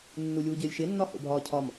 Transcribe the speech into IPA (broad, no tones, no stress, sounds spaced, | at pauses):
nː u lʲ uː ɟ ɪː lʲ ʃ ɪ nː ɒ h o̰ bʱ ɒː cʰ ɒ m